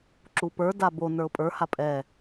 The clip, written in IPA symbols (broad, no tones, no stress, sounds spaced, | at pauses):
ǁ u p ə˞ d a b o n ə˞ ʊ̯ pʼ ə˞ h a pʼ ɛ